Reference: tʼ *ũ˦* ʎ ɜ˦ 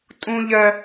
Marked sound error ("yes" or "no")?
no